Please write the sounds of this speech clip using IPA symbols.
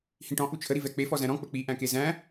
hĩʈɔ̃ ʔut͡ʃʰə ɾivɛk͡pe fɔzæ̃ɾɔ̃ k͡pək͡pi ʔæ̃kezæ̃

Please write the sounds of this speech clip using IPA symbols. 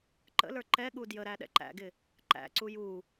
ǃə̰lə˞ ǃɛ ɠudjəɾæ ɗɛ̰ǃæ̰ɡɪ | ǃæ̰ǀu ju

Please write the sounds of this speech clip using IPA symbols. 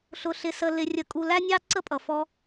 ɬʊ˧ɬɪ˧sə˧ lɪ˧ rʲə˧kʼu˧ læ˦nʲɑ˦ ǀə˦pʼʌ˨fɔ˧

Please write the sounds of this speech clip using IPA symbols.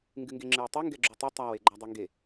ŋɡɨŋɡeŋ͡ǁɨwtˤu ŋɡɛɡ͡ǁutˤu tˤaw eɡ͡ǃadˤeŋɡe

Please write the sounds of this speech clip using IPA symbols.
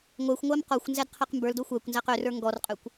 ŋʷæxʷ ŋʷæmqɔxʷnzæd qʰæqmbə˞ldo xʷækʷnzæq ørə˞ ŋɡɔrqʼøkʷ

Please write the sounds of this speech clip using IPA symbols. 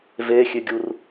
vexʲøɡʲur

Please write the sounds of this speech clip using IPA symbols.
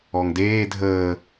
ɔŋdeː dʱəː

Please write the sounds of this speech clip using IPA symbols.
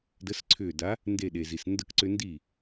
də˨˥sǀʰʏː˧˩da˨˥ | nde˧˩ɗe˩zi˩s ndə˥˩kǀʏ˦ ndi˥˩

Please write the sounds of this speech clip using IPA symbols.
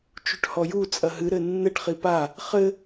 t͡ʃuʈhɔju t͡sʼɐɦɨ ɾɘnːɘʈ χipa | χɘ

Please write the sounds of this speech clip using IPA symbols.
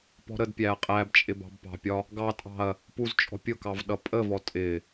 pɔ̤ɾədpʲæɐ̯ qʼæbt͡ʃʼɪ bɑ̤bpɑ̤pʲɒ | ɡɑtʼɑ̤ɐ̯ | puzt͡ʃʼɔ̤ pʲʊkɑv ɗʌpʼəvɔ tʼɪ

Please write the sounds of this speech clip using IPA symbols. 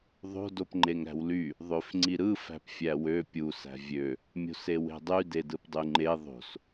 ðˤo̤ dopŋ͡ǃeŋɾæ̤wly | ðˤøfŋ͡ǀiɾɯ fæ̤pfʲæwø pʲu sæ̤vʲø | mʲo̤sewe̤dˤy dedɯpdˤyŋ͡ǃe ðˤo̤s

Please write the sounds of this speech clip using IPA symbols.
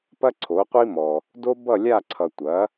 pɐ˥ǀʰo˩˥ qʷi˥mɔ˨ | do˥bʌ˥˨lʲa˥˨ǀʰʌ˨ tʷɐ˩˥

